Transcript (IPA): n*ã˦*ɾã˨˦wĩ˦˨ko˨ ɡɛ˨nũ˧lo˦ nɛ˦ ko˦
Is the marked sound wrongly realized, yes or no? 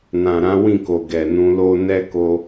yes